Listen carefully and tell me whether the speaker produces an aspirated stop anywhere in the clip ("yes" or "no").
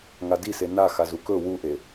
no